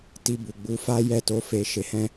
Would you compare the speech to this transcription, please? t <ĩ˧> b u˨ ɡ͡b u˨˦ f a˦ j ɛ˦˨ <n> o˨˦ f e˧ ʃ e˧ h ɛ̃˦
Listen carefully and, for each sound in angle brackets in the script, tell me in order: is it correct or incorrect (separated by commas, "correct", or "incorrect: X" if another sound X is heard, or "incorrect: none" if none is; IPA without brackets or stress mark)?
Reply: incorrect: i˧, incorrect: t